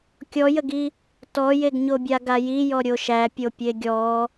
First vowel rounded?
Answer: yes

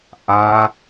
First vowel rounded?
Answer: no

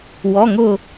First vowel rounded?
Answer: yes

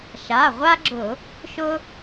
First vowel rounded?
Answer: no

